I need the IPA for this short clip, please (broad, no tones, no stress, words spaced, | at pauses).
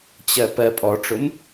t͡ɕɜpɜ pʼɔʈ͡ʂʊm